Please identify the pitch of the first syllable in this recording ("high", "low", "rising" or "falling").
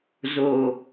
low